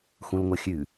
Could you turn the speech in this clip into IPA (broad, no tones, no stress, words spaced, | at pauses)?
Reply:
xũlŋʷɐxʲʉ